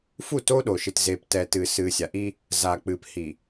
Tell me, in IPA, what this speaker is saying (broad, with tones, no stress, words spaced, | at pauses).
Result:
fu˦˨to˦ɗo˨ʃɨ˨t ze˨ptɛ˨tɨ˨sɨ˨ sʲa˨ʔi˦ | za˨k͡pɨ˨p hi˨